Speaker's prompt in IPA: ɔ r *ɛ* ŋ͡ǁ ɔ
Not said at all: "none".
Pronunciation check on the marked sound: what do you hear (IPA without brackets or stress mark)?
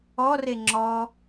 e